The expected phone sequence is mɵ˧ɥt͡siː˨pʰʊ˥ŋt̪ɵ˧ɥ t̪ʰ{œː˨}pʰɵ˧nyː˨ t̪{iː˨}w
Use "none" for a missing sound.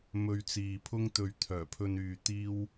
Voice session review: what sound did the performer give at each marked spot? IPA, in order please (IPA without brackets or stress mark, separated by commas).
œː˨˩, iː˥